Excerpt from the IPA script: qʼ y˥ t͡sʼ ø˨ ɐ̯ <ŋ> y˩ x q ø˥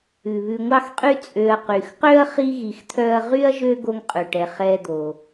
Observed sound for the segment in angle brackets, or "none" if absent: q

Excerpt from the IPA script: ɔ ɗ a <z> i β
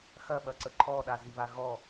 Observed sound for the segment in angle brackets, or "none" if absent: z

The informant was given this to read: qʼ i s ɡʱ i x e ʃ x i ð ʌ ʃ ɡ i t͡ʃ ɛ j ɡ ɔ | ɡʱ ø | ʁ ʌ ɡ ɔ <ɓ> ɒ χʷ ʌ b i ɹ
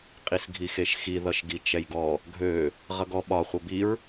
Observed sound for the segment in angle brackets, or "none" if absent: ɓ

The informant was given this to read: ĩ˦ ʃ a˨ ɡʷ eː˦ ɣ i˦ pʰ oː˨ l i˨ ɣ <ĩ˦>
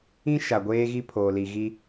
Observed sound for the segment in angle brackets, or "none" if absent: i˦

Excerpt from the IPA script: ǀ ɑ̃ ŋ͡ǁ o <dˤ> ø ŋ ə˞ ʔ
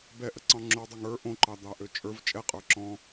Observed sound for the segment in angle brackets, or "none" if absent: dˤ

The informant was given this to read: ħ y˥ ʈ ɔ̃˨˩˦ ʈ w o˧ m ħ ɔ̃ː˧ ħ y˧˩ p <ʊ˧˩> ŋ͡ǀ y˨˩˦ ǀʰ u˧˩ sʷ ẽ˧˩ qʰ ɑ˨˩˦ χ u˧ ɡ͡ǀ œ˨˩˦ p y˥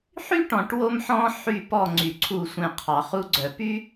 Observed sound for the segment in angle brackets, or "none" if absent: ɔ˧˩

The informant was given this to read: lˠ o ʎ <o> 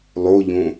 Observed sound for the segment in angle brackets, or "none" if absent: õ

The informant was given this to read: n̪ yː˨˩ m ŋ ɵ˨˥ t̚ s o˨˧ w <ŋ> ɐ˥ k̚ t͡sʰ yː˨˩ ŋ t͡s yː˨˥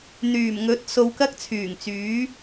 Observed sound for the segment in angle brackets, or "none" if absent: k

